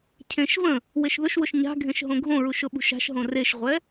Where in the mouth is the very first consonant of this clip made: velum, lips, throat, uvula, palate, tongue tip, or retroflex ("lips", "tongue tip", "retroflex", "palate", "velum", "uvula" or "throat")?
palate